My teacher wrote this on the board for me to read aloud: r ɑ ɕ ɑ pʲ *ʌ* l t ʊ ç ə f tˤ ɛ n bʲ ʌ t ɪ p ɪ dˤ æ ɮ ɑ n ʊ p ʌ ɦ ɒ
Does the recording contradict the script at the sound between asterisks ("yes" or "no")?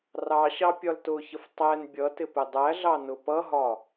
yes